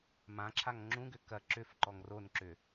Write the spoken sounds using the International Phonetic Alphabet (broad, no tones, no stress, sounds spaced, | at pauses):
m ã ǁʰ a ŋ ŋ͡ǁ ũ ɡ ʏ k ɐ ǁ ʏ f ǃ ɔ ŋ r o n ǁ ʏ